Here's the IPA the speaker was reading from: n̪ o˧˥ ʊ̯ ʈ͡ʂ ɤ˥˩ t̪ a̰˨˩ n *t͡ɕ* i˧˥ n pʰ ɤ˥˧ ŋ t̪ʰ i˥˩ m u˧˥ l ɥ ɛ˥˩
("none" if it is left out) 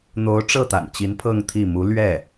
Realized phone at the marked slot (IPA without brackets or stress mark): t͡ɕ